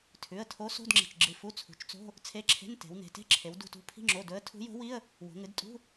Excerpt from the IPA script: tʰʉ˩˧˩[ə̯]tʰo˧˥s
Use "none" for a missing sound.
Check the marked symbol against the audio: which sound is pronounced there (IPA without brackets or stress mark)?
ə̯